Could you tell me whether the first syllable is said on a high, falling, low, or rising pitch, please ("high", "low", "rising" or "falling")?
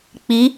rising